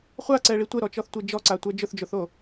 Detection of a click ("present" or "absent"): present